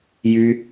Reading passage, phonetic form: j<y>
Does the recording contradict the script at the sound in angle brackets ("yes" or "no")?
no